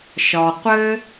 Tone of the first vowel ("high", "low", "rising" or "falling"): low